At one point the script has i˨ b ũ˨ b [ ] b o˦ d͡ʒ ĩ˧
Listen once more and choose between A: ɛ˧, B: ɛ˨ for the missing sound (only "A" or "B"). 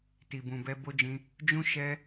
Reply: A